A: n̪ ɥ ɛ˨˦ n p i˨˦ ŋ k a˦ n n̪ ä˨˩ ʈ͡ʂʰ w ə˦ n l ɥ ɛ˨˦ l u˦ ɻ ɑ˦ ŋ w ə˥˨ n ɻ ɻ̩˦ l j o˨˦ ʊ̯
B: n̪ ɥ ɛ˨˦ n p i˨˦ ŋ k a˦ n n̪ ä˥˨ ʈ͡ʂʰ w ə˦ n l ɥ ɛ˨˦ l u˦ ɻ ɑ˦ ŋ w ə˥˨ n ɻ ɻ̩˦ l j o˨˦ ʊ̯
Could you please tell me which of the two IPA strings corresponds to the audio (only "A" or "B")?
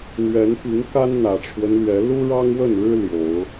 A